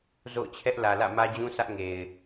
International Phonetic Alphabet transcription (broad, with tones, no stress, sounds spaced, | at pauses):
z o̰˦˨ ʊ̯ t͡ɕʰ ɛ˦ ʔ l ä˨ l ä̰˦˨ m ä˦ d͡ʑ ũ˦ sʰ ä˦ ʔ ŋ e˨ ɪ̯